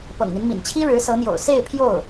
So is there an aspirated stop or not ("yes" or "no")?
yes